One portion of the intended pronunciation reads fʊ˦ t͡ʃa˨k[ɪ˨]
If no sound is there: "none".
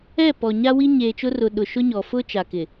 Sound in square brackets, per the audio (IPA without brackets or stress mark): ɪ˨